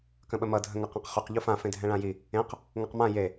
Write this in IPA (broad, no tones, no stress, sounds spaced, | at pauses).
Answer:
k ə̃ ɓ ə m ʌ dʱ ə̃ ŋ ʌ q ã q χ ʏ q ʎ u f ã f ẽ dʱ ɛ̃ ɭ ã j i | ẽ q | ŋ ɤ q m ã j e